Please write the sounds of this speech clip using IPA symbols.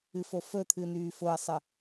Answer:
ɨ f o f ɵ t̪ʰ ɨ n̪ yː f ʊ ɐ̯ sˤ ə

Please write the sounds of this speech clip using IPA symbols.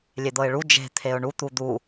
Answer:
lʲ e d̪ ɤ ɪ̯ ɭ u d͡ʒ e̤ t̪ʰ e ʊ̯ ɳ u t̪ u d̪ u

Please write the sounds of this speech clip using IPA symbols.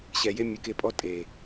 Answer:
ɕ ɛ˨˩ j e˧˥˧ mʲ ɯ˨˩ k e˧˥ pʼ ɔ˧˥ tʼ e˨˩

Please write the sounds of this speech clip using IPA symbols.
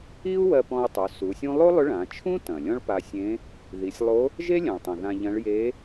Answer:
i˥ u̯ w ɜ˧ p ɔ̃˧ u̯ tˤ ʏ˩˧ s u˩˧ sʲ ũ˥ lˠ o˥ lˠ ʏ˧˥ ɭ ã˩˧ t͡ʃʰ ũ˥ t ɐ̃˩ lʲ ɔ̃˥ ɭ p a˧ sʲ ẽ˧˥ | ð i˩˧ sʲ lˠ o˧˥ | ʒ e˥ lʲ ã˩ ɭ tˤ ɐ̃˩ ð ã˧ ʎ ɐ̃˧˥ ɭ j e˧˥

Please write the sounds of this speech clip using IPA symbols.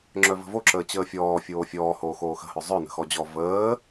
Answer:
ŋ͡ǁ œ v ə̤ v o ǁ əː t͡ɕ əː fʲ ɔː fʲ oː fʲ ɔː h oː x oː x ə̤ h œ zˤ œ n ə̤ x ɔ d͡ʑ ɔ v əː

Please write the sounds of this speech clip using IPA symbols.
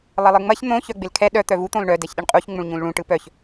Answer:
lˠ ɐ lˠ ɯ ŋ͡m ɐ ç n̪ õ ç œ ɡ͡b ɪ l kʰ ɛ ɗ œ t̪ œ v u t̪ õ l ɳ œ d ɛ ç ɗ ɪ ɳ qʼ u ç ŋ͡m ũ ɭ ɲ ũ l ɭ ũ ʈ ɯ p œ ç

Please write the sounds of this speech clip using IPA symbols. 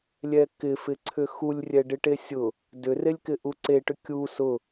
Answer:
lʲ ɛ k ɪ f ɪ ǀʰ ʏ x u lʲ rʲ ɛ ɖ ɪ ʈ e sʲ ʊ | d ʏ r e lʲ k ɪ ʔ u ǀ e ʈ ʏ kʲ u s ʊ

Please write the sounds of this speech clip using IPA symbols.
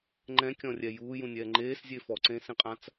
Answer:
ŋ͡ǃ ɛ̃ kʲ ɔ̃ rʲ ɛ j uː j ũ nʲ ɛː ŋ͡ǃ eː s zʲ e f ɔ ǀ ẽː s ĩ qʼ ã t͡s

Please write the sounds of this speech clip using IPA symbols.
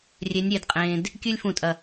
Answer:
rʲ e˨˦ nʲ ɾʲ eː˨ d qʼ ẽː˨ d | kʲ ʉ˦ lʲ f ũ˨ tʼ ɐ˨

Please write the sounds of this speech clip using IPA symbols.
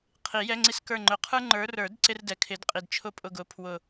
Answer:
qʰ i˨˩˦ j ɛ˧˥˧ ŋ͡ǀ i˦˨ s k ə˞˦˨ ŋ͡ǃ ʊ˨˦ qʰ ə˞˥ ŋ͡ǃ ə˞˨˦ r ə˞˨˩˦ d ǀ ɪ˥ r d ɛ˨ kʰ ɪ˨˦ d qʼ i˨ d t͡ʃʰ ʊ˥ pʼ ʊ˦˨ ɡ ʊ˧˥˧ pʰ w ʊ˦˨

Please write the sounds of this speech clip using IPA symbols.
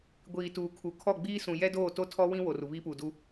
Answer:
ɡʷ iː˨ t uː˨ kʰ u˨ kʰ ɔ˦˨ ɡ͡b iː˦ s ũ˨ j ɛ˦ d oː˦˨ t o˦ tʰ ɔ˦ w ĩ˦ w o˨ r u˨ β iː˦ p uː˨ d u˦

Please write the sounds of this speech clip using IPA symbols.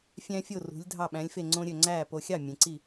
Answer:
fʲ æ̃˧ fʲ o˧˩ r ṳ˩˧ lʲ dʱ ɑ˧˩ ɓ æ̃˩˧ lʲ f e˧˩ ŋ͡ǀ õ˧ ɾʲ ø˧˩ ŋ͡ǀ æː˥˩ p o˧ xʲ ɑ˥˩ mʲ ẽ˩˧ ǀ i˥˩

